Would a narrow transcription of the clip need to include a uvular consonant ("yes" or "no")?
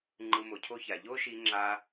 no